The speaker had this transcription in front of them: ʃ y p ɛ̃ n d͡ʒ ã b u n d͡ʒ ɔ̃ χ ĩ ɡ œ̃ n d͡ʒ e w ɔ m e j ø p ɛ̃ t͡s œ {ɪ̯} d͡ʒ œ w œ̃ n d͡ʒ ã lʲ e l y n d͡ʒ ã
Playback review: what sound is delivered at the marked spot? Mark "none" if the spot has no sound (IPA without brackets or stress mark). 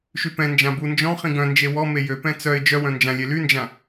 ɪ̯